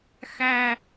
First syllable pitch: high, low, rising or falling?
high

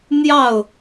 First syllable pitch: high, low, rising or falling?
falling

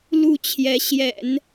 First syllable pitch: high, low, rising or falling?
falling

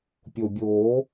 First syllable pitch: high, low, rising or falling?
low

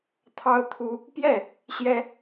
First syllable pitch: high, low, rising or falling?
high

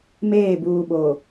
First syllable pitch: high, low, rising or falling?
falling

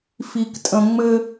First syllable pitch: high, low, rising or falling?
low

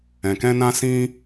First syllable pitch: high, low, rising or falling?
low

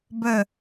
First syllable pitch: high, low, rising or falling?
falling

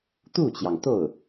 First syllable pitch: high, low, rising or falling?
falling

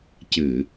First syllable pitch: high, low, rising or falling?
low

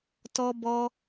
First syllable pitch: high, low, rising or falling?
high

